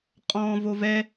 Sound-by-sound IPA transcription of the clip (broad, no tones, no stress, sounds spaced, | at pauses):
qʼ ɔ̃ː v o v ɛ